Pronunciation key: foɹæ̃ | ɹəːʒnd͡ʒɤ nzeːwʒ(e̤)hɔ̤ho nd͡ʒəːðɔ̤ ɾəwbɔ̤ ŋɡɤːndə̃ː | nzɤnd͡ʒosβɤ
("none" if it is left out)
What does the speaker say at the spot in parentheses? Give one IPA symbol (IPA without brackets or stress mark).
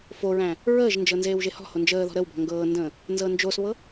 e